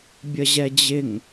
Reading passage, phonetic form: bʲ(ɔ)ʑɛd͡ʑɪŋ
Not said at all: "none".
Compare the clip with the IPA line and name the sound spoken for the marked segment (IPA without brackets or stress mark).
ə